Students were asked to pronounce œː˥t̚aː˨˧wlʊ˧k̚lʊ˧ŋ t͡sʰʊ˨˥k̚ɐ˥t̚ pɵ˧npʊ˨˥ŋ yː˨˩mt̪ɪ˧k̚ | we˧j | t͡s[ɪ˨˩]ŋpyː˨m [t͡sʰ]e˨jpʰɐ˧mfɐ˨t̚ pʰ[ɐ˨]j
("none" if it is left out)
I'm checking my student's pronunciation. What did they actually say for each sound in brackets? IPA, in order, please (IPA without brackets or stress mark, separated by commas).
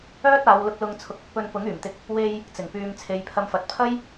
ɪ˨˩, t͡sʰ, ɐ˥